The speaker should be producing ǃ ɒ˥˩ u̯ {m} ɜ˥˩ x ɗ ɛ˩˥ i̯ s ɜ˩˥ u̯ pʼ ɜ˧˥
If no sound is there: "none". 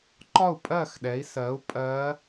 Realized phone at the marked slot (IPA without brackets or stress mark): pʼ